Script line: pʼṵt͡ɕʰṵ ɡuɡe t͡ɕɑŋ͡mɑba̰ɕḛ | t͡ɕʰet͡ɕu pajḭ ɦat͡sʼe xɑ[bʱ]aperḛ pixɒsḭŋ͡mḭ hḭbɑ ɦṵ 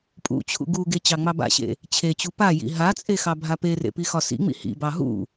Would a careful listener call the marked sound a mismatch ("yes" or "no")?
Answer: no